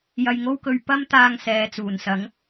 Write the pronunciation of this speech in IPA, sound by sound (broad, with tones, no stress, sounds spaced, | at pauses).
j ɐ˧ j ŋ o˥ w k ɵ˧ ɥ p ɐ˥ m t̪ aː˧ ŋ s ɛː˨ t͡s uː˨˩ n s ɐ˨˥ ŋ